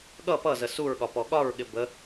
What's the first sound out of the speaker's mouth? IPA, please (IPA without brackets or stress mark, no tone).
ɠ